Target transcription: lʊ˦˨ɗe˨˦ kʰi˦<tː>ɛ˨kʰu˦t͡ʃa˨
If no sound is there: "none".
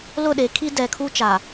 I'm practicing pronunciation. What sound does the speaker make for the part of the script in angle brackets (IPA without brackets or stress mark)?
d